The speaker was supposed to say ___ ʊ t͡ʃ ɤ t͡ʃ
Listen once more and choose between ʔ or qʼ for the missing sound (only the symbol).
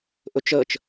ʔ